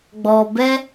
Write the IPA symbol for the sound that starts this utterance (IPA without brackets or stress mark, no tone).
ɡ͡b